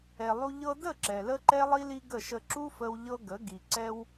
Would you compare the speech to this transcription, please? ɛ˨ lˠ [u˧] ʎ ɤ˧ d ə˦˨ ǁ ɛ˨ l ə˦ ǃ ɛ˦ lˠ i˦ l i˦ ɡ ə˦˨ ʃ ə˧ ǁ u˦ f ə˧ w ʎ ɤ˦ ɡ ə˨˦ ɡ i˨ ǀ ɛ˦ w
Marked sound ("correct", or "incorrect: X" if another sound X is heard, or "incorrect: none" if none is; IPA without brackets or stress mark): correct